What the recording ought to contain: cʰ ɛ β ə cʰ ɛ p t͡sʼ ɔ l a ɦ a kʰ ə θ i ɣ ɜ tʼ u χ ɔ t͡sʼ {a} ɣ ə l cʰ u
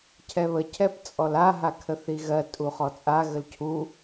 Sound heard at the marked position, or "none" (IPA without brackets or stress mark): a